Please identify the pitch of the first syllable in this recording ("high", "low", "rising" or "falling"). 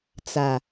low